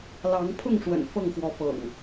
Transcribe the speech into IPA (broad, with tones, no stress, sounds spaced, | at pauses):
l ɑ˨˦ ŋ pʰ ʊ˥˨ ŋ ʂ w ə̰˨˩ n f ɤ˥˨ ŋ x w ɔ˨˦ f ɤ̰˨˩ ŋ